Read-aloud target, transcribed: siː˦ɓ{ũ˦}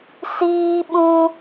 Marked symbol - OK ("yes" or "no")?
yes